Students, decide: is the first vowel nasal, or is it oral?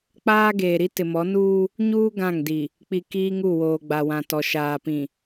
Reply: oral